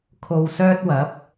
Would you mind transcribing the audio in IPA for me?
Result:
kʰ o˧ w s œː˥ t̚ w ɐ˨˥ p̚

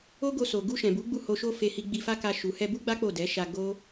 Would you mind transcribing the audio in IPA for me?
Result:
o˦ ɡ o˧ s o˨ ɡ u˧ ʃ ɛ̃˨ b u˨˦ ɡ͡b u˦˨ h o˧ ʃ o˦ f e˧ h i˧ ɡ͡b i˧ f a˦ k a˧ ʃ u˨ h ɛ˧ b u˦ ɡ͡b a˦ k͡p o˦˨ d ɛ˨˦ ʃ a˧ ɡ o˦

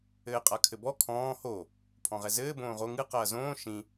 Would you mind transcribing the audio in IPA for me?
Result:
ɘː qʼ a kʰ ɘ b ɔ kʰ ɔ̃ː h o | pʰ ɔ̃ ʁ ɛ z ɘː b õː ʁ o ŋ ɨ q ɐː z õː ʃ ĩ

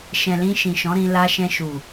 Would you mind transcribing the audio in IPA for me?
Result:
ʃ ɛ̃˨ l ĩ˧ ʃ ĩ˨ ʃ ɔ̃˨˦ ɾ ĩ˧ l a˧ ʃ ɛ̃˧ ʃ u˨

